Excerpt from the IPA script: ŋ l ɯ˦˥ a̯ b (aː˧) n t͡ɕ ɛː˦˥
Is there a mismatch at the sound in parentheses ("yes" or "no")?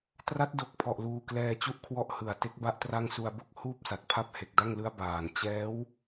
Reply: yes